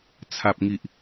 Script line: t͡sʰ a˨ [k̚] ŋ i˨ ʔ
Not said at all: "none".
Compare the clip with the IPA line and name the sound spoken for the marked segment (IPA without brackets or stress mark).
p̚